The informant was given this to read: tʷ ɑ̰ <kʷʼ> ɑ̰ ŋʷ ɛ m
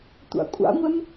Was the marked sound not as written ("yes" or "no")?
no